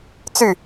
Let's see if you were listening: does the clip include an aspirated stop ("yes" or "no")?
no